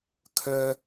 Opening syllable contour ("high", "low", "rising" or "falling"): high